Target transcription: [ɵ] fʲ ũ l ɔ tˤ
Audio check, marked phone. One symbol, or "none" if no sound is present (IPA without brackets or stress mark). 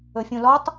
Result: ɵ